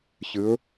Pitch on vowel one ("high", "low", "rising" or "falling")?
rising